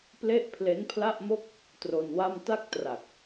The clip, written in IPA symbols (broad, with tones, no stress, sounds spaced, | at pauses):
p l e˥˩ ʔ pʰ l e˦˥ n pʰ l a˥˩ ʔ m o˥˩ k̚ | t r o˧ n w a˥˩ m t a˥˩ k̚ t r a˨˩ k̚